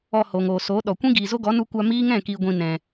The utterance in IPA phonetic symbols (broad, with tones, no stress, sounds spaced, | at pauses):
ɔ˧ h o˨ ŋ oː˨ s oː˨˦ ɗ ɔ˨ kʷ ĩ˦ ɡ iː˨ z o˦ ɡ ɔ˨˦ n u˧ kʷ a˧ m iː˦ ŋ ɛ̃˦˨ k iː˨ ɡʷ ĩ˨ n ɛ̃˨